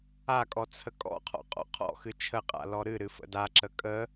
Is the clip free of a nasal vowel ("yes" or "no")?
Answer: yes